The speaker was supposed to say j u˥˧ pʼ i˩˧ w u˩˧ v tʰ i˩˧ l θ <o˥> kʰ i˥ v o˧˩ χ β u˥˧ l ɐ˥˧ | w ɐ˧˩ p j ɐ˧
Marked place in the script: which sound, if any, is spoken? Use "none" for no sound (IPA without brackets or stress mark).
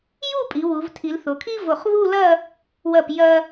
o˩˧